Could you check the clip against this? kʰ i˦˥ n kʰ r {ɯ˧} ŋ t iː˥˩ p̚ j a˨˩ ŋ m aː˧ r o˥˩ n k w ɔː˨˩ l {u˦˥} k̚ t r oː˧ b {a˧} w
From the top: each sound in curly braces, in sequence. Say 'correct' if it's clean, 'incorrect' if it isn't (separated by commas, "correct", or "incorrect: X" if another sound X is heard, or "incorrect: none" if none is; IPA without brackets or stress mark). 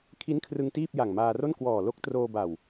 correct, incorrect: o˦˥, incorrect: a˨˩